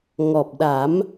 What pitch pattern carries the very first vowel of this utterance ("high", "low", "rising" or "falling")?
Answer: low